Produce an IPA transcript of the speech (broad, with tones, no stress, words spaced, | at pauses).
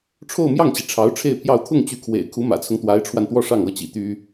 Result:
ʈ͡ʂʰo˥˧ʊ̯mjɑ˥˩ŋt͡ɕi˩ ʈ͡ʂʰɑ˧˥ʊ̯ʈ͡ʂʰe˥˧ɪ̯pʰjɑ˥˧ʊ̯ t̪ʰʊ˥˩ŋ t͡ɕy˧˥kʰwḛ˨˩ɪ̯ kʰu˧˥mä̰˨˩t͡sʰʊ˦ŋ t̪wa˧˥ɪ̯ʈ͡ʂʰwa˧nt̪wɔ˥˧ ʂɑ˥˩ŋɤ˥t͡ɕḭ˨˩ t̪y˥